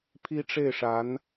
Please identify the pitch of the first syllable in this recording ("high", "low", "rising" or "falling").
high